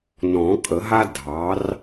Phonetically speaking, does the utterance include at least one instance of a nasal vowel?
yes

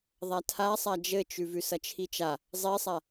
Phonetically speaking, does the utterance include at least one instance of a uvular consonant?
no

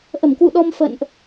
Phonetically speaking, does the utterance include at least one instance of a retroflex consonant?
no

